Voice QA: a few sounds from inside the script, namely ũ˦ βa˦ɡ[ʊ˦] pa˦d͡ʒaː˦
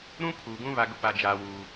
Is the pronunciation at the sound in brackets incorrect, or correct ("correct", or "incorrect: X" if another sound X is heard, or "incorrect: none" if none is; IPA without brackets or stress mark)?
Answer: correct